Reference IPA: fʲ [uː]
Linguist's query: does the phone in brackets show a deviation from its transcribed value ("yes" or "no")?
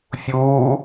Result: no